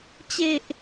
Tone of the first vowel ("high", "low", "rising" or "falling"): low